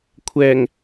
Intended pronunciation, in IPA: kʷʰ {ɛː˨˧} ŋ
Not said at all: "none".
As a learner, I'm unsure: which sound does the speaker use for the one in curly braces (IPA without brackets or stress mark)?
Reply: ɛː˨˩